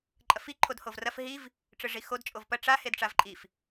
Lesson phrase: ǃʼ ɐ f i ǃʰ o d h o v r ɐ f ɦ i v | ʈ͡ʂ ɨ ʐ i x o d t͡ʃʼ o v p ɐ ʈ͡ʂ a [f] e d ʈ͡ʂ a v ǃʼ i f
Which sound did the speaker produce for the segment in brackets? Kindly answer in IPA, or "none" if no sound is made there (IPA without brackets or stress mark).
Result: h